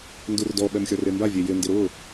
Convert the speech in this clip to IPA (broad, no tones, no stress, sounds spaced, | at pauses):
n d u r d ɔ ɓ ɛ m xʲ ɔ r e m b a vʲ e j ɪ n d ɪ ɾ ʊ